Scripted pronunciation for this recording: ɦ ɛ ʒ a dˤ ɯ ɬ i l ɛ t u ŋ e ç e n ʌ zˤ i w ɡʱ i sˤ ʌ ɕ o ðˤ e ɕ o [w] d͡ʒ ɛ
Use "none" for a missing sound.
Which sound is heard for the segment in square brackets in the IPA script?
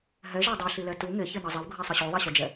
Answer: none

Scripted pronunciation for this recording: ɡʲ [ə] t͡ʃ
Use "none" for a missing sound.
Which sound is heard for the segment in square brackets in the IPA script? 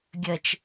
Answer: ə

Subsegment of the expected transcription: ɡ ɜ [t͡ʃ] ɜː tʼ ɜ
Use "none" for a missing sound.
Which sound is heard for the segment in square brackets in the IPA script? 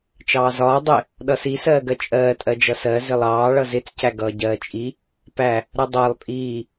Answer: t͡ʃʼ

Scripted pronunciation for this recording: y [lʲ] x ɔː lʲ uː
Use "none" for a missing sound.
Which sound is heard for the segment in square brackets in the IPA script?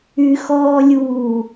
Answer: none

